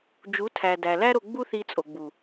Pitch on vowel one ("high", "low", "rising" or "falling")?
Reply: rising